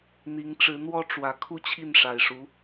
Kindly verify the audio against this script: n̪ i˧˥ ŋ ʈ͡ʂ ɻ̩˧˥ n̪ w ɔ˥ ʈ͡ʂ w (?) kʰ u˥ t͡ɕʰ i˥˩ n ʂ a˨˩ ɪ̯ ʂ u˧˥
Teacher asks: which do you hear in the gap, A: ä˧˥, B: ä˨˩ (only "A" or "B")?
A